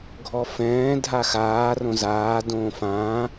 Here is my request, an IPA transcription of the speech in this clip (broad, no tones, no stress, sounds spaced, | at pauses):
ɡʱ ɔ f ɛ̃ː dʱ a x aː r õ z aː d õː f ãː